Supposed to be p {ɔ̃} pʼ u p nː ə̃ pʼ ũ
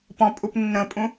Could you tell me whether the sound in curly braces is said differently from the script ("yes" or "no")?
no